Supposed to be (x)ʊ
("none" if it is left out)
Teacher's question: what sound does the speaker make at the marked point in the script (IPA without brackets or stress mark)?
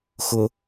x